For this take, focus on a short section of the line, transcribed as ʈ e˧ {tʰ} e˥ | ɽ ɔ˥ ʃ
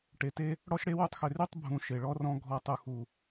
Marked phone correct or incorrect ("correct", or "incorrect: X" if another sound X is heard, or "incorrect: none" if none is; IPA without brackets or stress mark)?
incorrect: t